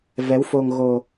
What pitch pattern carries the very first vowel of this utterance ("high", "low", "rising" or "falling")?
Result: rising